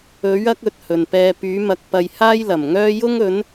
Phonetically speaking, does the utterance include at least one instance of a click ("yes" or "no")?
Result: no